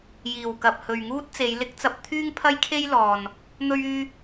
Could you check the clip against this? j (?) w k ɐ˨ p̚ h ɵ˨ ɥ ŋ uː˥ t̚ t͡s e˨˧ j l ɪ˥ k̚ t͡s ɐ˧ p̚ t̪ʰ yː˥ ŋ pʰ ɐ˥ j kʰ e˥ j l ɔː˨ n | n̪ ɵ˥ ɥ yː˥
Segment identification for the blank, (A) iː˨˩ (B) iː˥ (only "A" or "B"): A